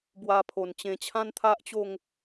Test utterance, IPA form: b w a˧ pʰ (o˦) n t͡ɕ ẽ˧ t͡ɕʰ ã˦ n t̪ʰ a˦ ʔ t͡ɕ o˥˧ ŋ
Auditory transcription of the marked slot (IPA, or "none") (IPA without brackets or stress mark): o˨˩